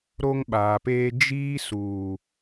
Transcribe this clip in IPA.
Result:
ɾ o˦ ŋ ɓ aː˨ p eː˦ d͡ʒ iː˦ s uː˨

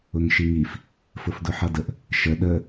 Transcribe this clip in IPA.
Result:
ʊ ŋ ʃ i ŋ i f | f ʊ f d ʊ ħ ʌ d ə ʔ | ʃ ə ɗ ə

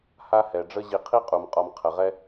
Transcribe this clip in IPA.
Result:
h a˥ h ɛ˩ ɖ͡ʐ ə˥ ʑ i˨ qʰ i˥ qʼ u˩ m qʼ ɒ˨ m qʰ ə˩ ʁ ɛ˦

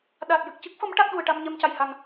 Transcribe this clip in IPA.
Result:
ɗ a˨˩ t̚ j ɨ˨˩ k̚ c ɨ˦˥ k̚ f ə˧˥ m ʈ a˦˥ k̚ ɗ u˨˩ ə̯ ʈ a˧ m ɲ ɛ˧ m c a˨˩ j h a˨˩ ŋ

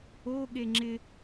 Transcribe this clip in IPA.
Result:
o ɠ e ŋ͡ǁ ɪ

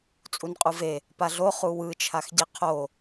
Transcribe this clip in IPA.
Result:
t͡sʼ u n qʼ u v e | p a ɮ o χ u w ɯ t͡ʃʰ a x ɟ e qʰ o

